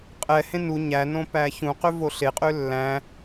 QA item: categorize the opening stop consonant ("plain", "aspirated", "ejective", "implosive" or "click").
ejective